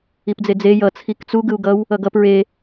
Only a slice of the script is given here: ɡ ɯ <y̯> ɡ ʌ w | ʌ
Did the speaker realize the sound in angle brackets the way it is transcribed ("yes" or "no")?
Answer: no